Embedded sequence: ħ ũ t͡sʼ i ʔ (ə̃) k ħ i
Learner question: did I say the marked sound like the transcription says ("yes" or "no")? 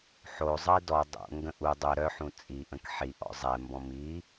yes